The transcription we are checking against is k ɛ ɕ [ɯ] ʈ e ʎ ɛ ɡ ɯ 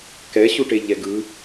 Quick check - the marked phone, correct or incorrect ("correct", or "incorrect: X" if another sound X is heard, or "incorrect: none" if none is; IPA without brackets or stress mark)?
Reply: incorrect: u